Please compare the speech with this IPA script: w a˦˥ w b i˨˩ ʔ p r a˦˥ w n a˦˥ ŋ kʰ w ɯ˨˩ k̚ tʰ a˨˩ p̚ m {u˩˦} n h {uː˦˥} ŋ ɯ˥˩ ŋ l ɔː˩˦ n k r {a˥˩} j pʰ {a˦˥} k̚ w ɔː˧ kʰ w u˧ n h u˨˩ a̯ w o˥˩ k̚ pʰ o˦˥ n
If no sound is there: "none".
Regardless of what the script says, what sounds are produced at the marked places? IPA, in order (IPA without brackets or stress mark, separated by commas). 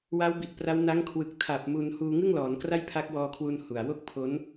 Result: u˧, uː˧, a˥˩, a˦˥